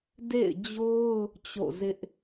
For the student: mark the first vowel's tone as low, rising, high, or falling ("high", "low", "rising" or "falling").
falling